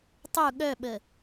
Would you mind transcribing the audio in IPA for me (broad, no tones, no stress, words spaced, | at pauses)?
tˤu ɠœɓə